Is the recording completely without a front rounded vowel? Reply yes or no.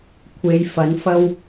yes